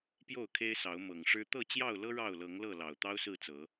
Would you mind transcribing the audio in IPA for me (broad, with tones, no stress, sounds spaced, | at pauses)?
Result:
p j o˥˨ ʊ̯ kʰ e˦ ɪ̯ s ɑ˨˦ ʊ̯ m ɤ˨˩ ŋ ʂ ɻ̩˦ t̪ ɤ˥˨ t͡ɕ j ɑ˥˨ ʊ̯ l ɤ˦ ɻ ɑ˥˨ ʊ̯ l ɤ˨˦ ŋ l ɤ˥˨ l ɑ˨˩ ʊ̯ t̪ ɑ˦ ʊ̯ s ɹ̩˥˨ t͡s ɤ˨˦